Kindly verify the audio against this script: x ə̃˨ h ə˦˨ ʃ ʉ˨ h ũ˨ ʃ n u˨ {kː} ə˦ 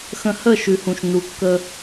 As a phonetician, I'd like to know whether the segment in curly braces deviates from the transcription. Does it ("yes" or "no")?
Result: no